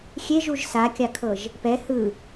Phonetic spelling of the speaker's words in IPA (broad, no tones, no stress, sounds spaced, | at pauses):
xʲ e ʒ u ʒ s a kʲ a kʰ ɤ ʒ | p ɛ h ɯ